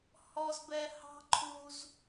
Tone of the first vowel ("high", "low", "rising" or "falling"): low